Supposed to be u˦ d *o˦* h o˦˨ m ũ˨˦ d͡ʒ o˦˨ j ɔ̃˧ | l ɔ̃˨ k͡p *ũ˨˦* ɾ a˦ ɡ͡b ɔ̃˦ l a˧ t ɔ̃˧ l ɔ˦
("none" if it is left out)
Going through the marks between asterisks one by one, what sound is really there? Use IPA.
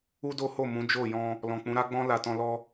o˦, ũ˨˦

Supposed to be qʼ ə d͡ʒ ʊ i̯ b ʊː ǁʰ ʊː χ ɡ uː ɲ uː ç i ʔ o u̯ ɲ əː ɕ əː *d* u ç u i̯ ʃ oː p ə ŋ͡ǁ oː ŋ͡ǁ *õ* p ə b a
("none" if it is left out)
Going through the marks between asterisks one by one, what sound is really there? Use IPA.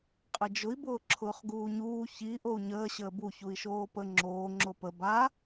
b, o

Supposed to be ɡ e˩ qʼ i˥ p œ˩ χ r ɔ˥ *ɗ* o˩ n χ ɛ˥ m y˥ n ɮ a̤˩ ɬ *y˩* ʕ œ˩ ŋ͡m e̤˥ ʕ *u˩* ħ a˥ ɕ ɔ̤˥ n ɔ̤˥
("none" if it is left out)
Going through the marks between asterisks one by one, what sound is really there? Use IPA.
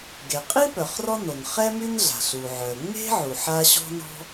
n, u˩, u˩

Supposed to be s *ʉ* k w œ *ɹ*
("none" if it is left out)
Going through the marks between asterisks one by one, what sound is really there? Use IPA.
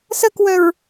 ə, ɹ

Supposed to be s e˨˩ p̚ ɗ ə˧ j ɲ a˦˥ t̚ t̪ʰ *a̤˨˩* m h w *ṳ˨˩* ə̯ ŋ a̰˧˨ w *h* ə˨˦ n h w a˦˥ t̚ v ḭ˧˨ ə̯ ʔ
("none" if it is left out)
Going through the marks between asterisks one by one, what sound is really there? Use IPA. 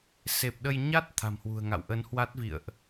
a̤˨˩, ṳ˨˩, ʔ

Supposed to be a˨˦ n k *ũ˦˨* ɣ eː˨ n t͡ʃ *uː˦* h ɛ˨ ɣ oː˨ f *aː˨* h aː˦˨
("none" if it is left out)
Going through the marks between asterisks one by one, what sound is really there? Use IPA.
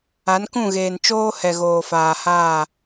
ũ˦˨, oː˦, aː˨

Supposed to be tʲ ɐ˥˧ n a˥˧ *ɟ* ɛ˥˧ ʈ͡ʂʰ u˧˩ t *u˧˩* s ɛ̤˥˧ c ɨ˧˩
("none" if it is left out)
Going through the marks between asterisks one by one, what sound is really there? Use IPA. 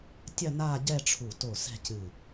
ɟ, o˧˩

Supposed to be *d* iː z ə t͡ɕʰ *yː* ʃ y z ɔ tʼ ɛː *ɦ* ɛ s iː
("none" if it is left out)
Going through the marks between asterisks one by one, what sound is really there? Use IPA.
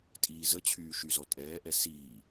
tʼ, yː, ʔ

